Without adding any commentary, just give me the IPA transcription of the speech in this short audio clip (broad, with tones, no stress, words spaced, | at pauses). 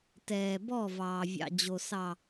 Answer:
tɛː˨bɔ˦˨ vɑː˨vʲɑ̰˨d͡ʑo˨ sɑ˨